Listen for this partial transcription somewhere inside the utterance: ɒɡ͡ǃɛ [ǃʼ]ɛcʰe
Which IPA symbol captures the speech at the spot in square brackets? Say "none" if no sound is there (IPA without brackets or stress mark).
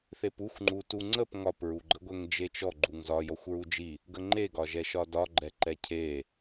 ǃ